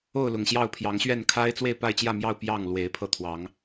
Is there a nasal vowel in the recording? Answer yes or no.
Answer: no